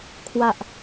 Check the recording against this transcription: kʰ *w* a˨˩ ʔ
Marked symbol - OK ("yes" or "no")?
yes